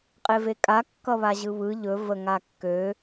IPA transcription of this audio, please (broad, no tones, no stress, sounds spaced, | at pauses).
qʼ e v e kʼ a kː ʌ β a ʑ ɯ β ɯ ʎ ɵ v ə ŋ a kː ø